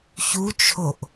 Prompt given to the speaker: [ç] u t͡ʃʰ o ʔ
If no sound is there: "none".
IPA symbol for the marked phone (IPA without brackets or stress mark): ç